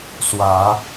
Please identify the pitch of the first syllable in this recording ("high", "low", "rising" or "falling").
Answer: rising